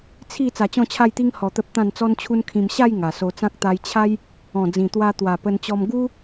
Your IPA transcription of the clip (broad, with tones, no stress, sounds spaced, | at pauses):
t͡sʰ i˥˧ t͡s a˧ t͡ɕ ɔ̃˥˧ t͡ɕʰ a˥˧ j t̪ i˦ ŋ h ɔ˧ t̪ ə˦ p̚ t̪ ã˥˧ n t͡s ɔ˦ n t͡ɕʰ u˦ n kʰ ĩ˧ m ɕ a˥˧ j ŋ a˨˩ s o˧ t͡s ã˦ k̚ t̪ a˧ j t͡ɕʰ a˦ j | ɔ̃˨˩ d͡z ĩ˨˩ t̪ w a˧ t̪ w a˨˩ p ə˧ n t͡ɕ ɔ˧ m ɡ u˦